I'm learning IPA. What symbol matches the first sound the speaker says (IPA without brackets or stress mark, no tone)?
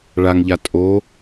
ɭ